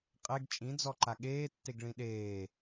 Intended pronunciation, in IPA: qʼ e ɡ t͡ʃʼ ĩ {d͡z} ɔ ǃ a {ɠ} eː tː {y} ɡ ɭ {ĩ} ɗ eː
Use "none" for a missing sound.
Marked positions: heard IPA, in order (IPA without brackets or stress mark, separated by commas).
d͡z, ɠ, e, ĩ